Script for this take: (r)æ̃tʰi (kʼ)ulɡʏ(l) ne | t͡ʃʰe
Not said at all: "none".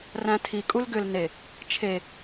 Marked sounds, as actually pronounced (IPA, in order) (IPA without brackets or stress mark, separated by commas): r, kʼ, l